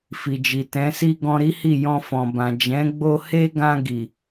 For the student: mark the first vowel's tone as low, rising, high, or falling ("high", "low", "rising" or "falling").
low